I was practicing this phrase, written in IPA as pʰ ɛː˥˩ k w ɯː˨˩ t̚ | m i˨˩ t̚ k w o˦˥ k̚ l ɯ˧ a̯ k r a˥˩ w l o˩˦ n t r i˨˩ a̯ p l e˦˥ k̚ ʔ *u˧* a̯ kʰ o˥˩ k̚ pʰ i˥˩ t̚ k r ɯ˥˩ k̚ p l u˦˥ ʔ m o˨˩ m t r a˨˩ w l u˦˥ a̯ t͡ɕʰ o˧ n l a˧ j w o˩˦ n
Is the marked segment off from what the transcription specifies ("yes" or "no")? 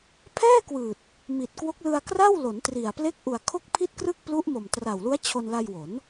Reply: yes